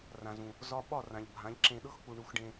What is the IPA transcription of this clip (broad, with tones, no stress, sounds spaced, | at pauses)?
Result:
r ã˨ z ũ˨ | z ɒ˧ ɓ ɒ˦˨ r ã˨ ʎ bʱ ã˨˦ ʎ ǁ ẽ˧ ɗ ɤ˦ x k͡p u˨ ɳ u˨˦ x ɖ ẽ˧